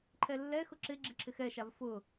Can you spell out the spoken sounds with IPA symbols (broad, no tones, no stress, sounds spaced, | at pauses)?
ǃʰ ɛ lː ɛ x ʊ ǁ ɪ ɡ͡ǁ ɪ ǁʰ ɪ x ɛ ʃ a v f ʊ